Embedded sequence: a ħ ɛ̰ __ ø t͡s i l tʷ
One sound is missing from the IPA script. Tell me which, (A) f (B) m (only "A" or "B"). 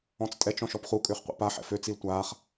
A